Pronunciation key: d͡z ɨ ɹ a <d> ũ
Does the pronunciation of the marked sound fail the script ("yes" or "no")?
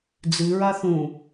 yes